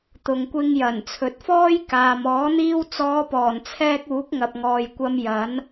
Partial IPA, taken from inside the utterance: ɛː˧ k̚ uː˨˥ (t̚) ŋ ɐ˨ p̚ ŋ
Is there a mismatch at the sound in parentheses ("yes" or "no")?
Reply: yes